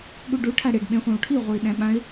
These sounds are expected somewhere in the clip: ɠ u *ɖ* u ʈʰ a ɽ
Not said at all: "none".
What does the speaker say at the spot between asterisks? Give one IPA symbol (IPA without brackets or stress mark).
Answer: ɖ